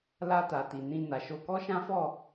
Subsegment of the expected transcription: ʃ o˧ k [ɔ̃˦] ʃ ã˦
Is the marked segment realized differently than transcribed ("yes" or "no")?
yes